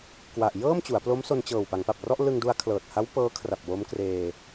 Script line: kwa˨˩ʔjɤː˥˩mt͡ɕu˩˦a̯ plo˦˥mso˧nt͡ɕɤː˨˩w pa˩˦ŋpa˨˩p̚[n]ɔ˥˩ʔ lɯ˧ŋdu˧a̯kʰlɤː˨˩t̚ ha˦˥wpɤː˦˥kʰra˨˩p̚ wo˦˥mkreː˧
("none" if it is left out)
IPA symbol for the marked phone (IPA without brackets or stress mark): r